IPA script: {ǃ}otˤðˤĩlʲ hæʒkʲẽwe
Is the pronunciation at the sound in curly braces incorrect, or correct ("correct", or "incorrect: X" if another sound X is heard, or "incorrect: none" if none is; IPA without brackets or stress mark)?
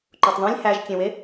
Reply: correct